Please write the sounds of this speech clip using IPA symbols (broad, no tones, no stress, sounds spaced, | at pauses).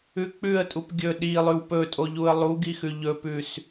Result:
ʉ k͡p ʉ ə̯ tʼ u p ɡʲ ɵ ɗ i lˠ ʉ w p ɵ tʼ o ʎ u ə̯ lˠ u ɡ i x ʉ ʎ ɵ p ʉ s